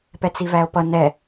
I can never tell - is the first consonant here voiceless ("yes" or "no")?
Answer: yes